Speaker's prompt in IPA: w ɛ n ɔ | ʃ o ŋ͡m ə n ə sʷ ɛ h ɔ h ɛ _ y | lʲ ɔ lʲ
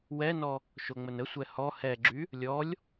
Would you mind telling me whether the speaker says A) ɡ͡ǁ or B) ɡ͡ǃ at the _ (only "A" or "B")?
A